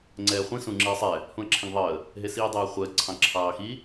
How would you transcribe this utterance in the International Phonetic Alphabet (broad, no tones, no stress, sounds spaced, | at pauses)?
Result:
ŋ͡ǀ ɛː χʷ ĩ s ũ ŋ͡ǁ i ə̯ sˤ ɛ | h ũ ə̯ ǁʰ ĩ ŋ ðˤ əː | ɦ e s iː dˤ ɛː χʷ ɛ ə̯ ǀʰ ɑ̃ ǁʰ ɑː x i